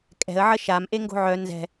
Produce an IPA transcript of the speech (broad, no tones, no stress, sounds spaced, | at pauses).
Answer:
kʼ ɛ̤ ə̯ ʕ ə ʃ a m ʔ e ŋ ɡ o̤ ʕ œ n z ɛ̤